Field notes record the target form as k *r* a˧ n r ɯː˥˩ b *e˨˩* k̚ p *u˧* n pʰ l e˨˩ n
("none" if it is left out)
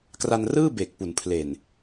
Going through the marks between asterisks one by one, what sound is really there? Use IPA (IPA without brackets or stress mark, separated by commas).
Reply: r, e˨˩, u˩˦